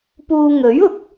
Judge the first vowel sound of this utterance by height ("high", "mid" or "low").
high